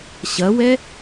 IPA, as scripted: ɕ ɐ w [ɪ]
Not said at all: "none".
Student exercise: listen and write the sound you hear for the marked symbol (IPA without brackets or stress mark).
ɛ